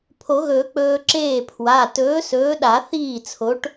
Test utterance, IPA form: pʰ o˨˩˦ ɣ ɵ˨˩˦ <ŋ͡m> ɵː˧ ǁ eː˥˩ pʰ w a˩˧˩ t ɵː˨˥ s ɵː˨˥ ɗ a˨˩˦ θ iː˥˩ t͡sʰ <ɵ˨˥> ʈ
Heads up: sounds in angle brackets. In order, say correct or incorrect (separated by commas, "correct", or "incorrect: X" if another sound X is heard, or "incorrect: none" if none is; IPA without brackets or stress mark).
incorrect: k͡p, incorrect: o˨˥